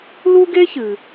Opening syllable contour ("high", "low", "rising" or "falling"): high